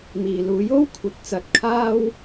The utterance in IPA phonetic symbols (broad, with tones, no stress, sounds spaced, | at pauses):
m iː˨ l uː˨˥ j o˥ w kʷʰ ɐ˨˥ t̚ t͡s ɐ˨˥ t̚ kʰ aː˥ w